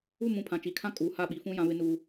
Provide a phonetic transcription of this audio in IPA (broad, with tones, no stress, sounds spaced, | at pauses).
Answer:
u˦˨ m ũ˨˦ pʰ ã˨ t͡ʃ i˨ kʰ ã˦ kʼ uː˨ h a˦˨ ɓ i˨ f ũ˦ j ã˦ β ɪ˦ n u˦